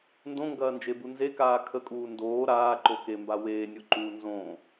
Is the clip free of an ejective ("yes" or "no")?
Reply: no